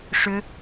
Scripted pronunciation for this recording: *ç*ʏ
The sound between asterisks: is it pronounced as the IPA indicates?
no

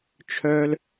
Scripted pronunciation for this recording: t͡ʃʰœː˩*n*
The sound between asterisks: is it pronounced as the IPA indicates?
no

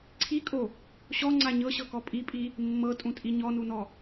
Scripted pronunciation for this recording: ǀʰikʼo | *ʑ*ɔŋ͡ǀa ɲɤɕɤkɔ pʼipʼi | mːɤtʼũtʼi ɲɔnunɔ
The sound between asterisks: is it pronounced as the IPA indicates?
no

